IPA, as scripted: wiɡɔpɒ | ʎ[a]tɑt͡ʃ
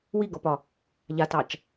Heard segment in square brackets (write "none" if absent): a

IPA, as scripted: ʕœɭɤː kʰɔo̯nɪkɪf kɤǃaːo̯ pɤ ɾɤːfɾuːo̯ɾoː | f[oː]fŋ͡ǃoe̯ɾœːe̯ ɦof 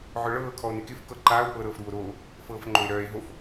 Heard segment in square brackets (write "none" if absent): ɤː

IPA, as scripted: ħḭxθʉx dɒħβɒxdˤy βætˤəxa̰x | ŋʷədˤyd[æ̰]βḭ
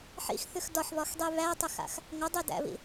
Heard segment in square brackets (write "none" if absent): æ̰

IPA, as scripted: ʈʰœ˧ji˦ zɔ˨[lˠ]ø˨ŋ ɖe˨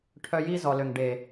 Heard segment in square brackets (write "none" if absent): l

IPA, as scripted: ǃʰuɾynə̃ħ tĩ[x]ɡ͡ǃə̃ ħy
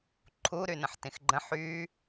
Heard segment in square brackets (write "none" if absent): x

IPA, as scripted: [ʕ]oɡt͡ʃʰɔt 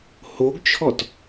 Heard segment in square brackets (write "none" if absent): h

